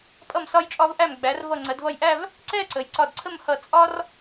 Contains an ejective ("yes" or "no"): yes